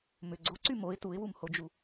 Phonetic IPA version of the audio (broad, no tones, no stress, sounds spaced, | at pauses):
m ʏ ɡ͡ǀ o ǀ y m o ɪ̯ t u ɪ̯ w u m h o d͡ʒ u